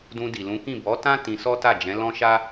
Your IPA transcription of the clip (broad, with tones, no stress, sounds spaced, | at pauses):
d ũ˧ d i˨ l ũ˨˦ k ĩ˦˨ b ɔ˨˦ t ã˦ t ĩ˧ s ɔ˦ t a˦˨ d͡ʒ ɛ̃˨˦ l ɔ̃˦ ʃ a˦